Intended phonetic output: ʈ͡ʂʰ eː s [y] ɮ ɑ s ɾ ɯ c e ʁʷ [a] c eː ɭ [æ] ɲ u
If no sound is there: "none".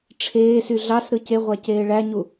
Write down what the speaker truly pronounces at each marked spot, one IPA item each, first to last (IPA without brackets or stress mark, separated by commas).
y, æ, æ